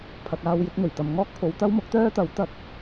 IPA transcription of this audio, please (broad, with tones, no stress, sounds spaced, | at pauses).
pʰ ɐ˨ k̚ aː˧ w j ɪ˧ k̚ n̪ ɵ˨˩ ɥ t̪ ɐ˨ m ŋ ɔː˥ k̚ pʰ o˨˧ w t̪ ɐ˥ w m ʊ˨˥ k̚ t̪ œː˥ t̪ ɐ˨˥ w t̪ ɐ˧ k̚